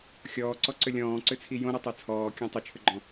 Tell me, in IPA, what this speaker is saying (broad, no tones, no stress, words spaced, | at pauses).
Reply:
xʲɔːǀɔǀʏ lʲɔ̃ːǀʏt͡sʰi jõɾɔtˤo t͡sʰɔːkʲɔ̃ tˤʏt͡ʃʰʏɡ͡ǃɔ̃